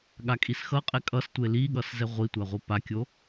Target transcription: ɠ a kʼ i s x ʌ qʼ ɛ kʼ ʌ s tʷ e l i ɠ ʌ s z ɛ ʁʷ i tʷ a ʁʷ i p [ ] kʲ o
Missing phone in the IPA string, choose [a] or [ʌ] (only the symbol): a